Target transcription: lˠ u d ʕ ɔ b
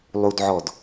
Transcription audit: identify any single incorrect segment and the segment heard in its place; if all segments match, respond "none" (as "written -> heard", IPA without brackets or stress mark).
b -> d